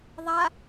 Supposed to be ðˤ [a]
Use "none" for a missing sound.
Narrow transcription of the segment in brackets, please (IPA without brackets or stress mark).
a